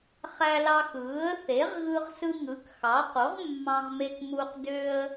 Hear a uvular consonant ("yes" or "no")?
yes